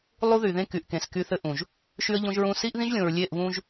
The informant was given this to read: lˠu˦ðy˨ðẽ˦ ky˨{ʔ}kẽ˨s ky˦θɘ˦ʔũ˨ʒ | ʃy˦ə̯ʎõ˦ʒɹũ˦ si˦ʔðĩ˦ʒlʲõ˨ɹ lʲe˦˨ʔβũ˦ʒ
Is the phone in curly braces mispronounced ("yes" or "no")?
no